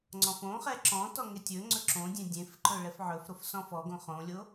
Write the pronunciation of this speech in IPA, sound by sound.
ŋ͡ǀ ɔ̃ f õ χ ɛ ǁ ɔ̃ t ɔ ŋ e tʲ ɵ ŋ͡ǀ ɵ ǁ õ dʲ ẽ dʲ ẽ f ǃ ɵ ɭ ɛ f ʕ ɵ f ɾ o f s ɔ̃ f ɔ ɡ õ χ õ lʲ o

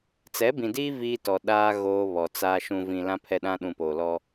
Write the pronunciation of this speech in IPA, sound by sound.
t͡s ɛ˨˦ b ĩ˨ d iː˦ v iː˦ t ɔ˨ ɗ aː˦ ɣ oː˦ β ɔ˨ t͡s aː˦ ʃ ũ˨ v ĩ˨ l ã˦ pʰ ɛ˦ ɗ ã˦ ɗ ũ˨ p oː˨ l ɔ˦

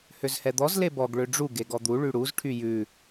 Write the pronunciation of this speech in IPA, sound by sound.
h ø z h ɛ d̪ ɔ z l e b ɔ ɡ ɭ ø ɖ͡ʐ u ɡ e ɡ ɔ d̪ u ɭ y ɽ u z ʈʰ y j ʉ

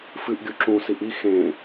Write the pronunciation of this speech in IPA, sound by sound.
f ɨ ʔ ɡʲ u ǁ ũ s i ʔ i x ẽ

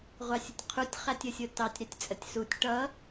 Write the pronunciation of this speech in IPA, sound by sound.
ʁʷ ɑ sʲ ʊ tʲ qʰ u tʲ χ æ tʲ ə sʲ ʊ t ɑ tʲ ɾ ɛ tʲ t͡sʼ ə tʲ s u tʲ ʈ ʌ

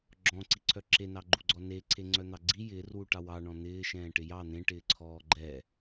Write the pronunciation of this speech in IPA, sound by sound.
ɡ͡ǁ ɔ̃ ǀ i ǀʰ œ ǁ e n ɑ ɡ͡ǃ u ɡ͡ǀ ɔ n e ǀʰ e ŋ͡ǀ œ n̪ ɑ ɡ͡ǀ i j ɪː r w u ʈ ɑ w ɑ ɳ ɔ̃ n̪ ɪː ʃ ɛ̃ː ʈ ɪ j ɑ n̪ ẽ ʈ ɪː ǀʰ ɔː ɡ͡ǃ ɛ

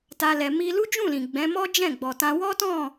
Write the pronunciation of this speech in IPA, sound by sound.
t a˦ l ɛ˧ m i˧ l u˦ d͡ʒ ũ˦˨ l ĩ˨ ɡ͡b ɛ̃˨˦ m ɔ˦ d͡ʒ ɛ̃˦˨ ɡ͡b ɔ˨ t ã˧ w ɔ˦ t ɔ̃˦˨

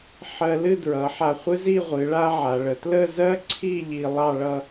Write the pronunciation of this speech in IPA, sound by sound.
ħ ɜ˧ l ɨ˥˧ d ɹ ʌ˩˧ ħ a˧˩ χʷ ɨ˥ z i˥˧ ʁʷ ɨ˩˧ ɭ a˥ ʕ a˩˧ ɭ ə˩˧ t l ə˥˧ z ɜ˥ ǀʰ i˥˧ ʎ i˧ lˠ ɑ˥˧ ɭ ʌ˥˧

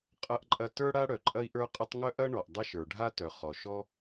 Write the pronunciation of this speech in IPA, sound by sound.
qʼ ɐ˥ ʔ ǃʼ ɐ˥ t ə˞˥ ɽ a˥ ɽ œ˩ ǃʼ ɐ˥ i̯ ʔ ə˞˥ qʼ ə˥ tˤ ŋ œ˥ ʔ ɐ˥ ɳ ɔ˩ ʔ dˤ a˥ ʃ ə˞˩ ɖʱ a˥ t œ˩ χ ɔ˩ ʃ ɔ˥

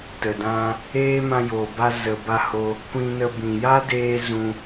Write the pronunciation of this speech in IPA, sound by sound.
t ə˨ d ã˧ | eː˦ m ã˧ j o˨ b a˧ z ə˨ b a˧ h o˧ | kʷ ĩ˧ n ə˧ b ĩ˨ j a˦ d eː˧ z ũ˧

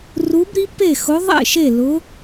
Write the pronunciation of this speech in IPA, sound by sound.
r u˧˥ b ɾ i˧˥ p e˥˨ x ʊ˧˥ ðˤ ḛ˥˨ ʃ e˥˨ l ʊ˧˥

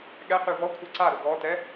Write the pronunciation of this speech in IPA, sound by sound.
ɠ ɛ q y v ɔ kʷʰ ɛ ǀ a ɾ o ɡ ɔ t ɛ

